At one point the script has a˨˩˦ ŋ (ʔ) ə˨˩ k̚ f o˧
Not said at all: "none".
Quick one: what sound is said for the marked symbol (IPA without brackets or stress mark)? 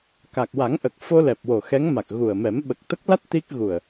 ʔ